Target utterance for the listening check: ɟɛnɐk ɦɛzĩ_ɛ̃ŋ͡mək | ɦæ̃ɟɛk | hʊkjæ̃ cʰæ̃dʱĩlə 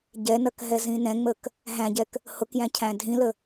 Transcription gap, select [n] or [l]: n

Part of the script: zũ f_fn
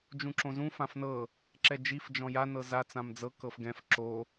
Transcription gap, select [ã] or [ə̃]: ã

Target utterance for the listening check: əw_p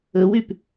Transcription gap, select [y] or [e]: y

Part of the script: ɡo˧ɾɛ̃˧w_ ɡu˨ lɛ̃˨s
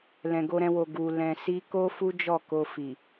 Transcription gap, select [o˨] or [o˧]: o˨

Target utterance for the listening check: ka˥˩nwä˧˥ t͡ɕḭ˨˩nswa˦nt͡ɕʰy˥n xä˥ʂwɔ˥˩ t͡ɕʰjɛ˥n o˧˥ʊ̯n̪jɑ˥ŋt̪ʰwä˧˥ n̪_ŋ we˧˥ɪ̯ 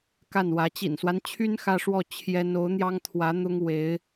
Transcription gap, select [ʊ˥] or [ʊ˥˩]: ʊ˥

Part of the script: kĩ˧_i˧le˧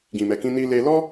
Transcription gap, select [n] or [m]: n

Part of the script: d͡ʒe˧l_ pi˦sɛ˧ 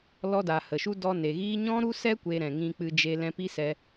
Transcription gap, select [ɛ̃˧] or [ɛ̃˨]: ɛ̃˧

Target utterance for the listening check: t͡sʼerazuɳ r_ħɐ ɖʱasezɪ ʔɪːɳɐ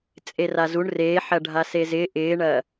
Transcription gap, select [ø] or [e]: e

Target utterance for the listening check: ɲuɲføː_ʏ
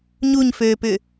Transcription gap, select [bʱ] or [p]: p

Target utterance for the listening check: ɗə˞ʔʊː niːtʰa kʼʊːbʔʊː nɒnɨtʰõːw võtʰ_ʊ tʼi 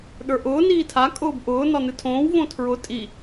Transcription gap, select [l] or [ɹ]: ɹ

